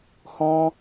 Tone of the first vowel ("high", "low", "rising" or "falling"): high